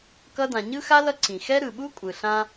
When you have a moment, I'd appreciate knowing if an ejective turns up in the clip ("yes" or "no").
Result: yes